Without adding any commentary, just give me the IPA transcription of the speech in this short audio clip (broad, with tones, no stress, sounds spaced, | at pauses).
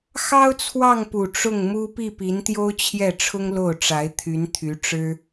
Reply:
x ɑ˥ ʊ̯ t͡sʰ w ɑ˥˩ ŋ p u˨˩ ʈ͡ʂ ʊ˥˩ ŋ m u˥ p i˥˩ p i˧˥ n t̪ j o˥ ʊ̯ t͡ɕʰ j ɛ˥˩ ʈ͡ʂʰ ʊ˥ ŋ l o˥˩ ʊ̯ ʈ͡ʂ a˧˥ ɪ̯ t̪ʰ y˧˥ n t̪ʰ y˧˥ ʈ͡ʂ ɻ̩˥